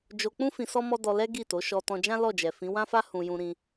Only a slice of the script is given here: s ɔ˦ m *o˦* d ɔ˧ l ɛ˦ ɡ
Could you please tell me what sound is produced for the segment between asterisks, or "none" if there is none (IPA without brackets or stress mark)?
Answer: ɔ˦